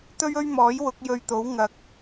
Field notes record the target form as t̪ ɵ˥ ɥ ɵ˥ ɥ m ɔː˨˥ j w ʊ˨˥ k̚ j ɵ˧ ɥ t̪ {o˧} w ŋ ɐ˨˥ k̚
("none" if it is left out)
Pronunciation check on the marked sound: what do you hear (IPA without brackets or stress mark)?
o˨˥